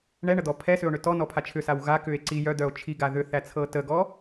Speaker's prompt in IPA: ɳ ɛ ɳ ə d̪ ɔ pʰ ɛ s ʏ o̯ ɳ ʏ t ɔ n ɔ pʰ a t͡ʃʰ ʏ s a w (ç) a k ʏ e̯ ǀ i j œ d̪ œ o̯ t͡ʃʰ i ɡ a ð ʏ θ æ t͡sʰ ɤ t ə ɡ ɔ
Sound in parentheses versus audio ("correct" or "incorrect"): incorrect